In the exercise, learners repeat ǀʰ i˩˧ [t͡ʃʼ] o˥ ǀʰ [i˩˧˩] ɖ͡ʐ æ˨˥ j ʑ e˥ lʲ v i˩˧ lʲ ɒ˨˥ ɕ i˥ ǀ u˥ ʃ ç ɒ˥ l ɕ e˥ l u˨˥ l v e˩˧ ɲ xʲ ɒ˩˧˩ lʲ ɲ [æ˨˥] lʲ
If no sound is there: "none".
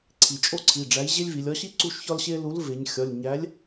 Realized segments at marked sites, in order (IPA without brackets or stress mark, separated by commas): t͡ʃʼ, i˩˧˩, æ˨˥